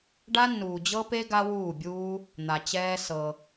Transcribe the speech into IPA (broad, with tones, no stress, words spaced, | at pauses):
ɖa˦nːuː˨d͡ʑɤ˦pe˦ ɡa˦wuː˦˨bʲuː˦ | n̪a˨t͡ɕɛː˦sɤ˧